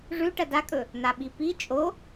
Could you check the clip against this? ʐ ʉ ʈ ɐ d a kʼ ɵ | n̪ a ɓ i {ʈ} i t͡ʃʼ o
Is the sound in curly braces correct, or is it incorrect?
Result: incorrect